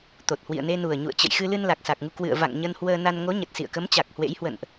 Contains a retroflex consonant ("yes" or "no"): no